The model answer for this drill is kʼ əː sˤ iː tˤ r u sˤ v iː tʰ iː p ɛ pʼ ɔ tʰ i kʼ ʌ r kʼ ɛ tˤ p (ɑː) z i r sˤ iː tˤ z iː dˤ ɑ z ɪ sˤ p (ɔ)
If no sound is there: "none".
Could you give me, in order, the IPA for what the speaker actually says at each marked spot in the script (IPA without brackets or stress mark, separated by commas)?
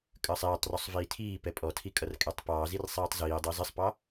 ɑː, ɑ